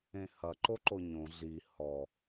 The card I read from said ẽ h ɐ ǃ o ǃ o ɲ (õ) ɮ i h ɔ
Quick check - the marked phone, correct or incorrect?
correct